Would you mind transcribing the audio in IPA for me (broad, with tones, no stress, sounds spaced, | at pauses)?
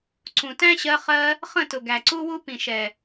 ǀ ũ˨ t æ̃˦ ɕ ɜ˧ χ ɜ˧ | χ ə̃˦˨ t ʊ˨ ɡ æ˨ ǀ u˦ w u˦ p ĩ˨ ʃ ɛ˨